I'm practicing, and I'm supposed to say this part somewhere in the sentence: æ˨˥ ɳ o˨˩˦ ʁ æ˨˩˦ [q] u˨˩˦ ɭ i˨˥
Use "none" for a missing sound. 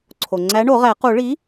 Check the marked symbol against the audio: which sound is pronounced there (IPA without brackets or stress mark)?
q